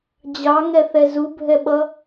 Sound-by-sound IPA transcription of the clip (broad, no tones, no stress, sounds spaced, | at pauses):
d͡ʑ ɑ ŋ ɛ θ ɛ z u bʱ ɛ ɓ ʌ